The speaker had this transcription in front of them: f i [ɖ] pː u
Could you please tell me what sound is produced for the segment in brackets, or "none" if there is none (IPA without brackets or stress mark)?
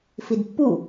d